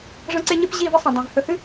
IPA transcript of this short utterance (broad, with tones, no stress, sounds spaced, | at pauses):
ʐ ɐ̃˦ ǀ e˦ ɲ ɨ˦ p ʑ i˦˨ v ɨ˦ sˤ ɐ̃˨ dˤ ẽ˨ v h ɵ˨ h ɨ˦